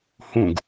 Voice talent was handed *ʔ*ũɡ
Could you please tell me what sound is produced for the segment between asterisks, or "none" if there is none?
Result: h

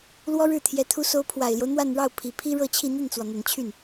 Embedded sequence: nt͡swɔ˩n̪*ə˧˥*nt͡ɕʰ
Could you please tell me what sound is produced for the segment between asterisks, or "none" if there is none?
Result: ə˨˩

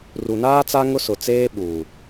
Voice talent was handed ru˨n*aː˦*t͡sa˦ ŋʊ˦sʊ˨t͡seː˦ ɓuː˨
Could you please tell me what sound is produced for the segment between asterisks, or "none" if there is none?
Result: aː˦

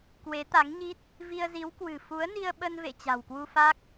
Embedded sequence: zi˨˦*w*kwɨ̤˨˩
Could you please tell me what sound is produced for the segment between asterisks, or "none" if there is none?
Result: w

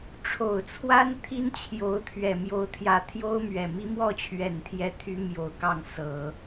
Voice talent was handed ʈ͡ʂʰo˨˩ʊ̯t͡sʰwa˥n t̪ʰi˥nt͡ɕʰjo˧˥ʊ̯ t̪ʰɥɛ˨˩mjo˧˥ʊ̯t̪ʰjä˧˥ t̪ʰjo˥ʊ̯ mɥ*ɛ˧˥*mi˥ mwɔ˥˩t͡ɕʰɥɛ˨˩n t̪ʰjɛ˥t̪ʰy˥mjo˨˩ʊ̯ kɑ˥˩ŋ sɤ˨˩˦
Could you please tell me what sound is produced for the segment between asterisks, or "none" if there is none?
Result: ɛ˨˩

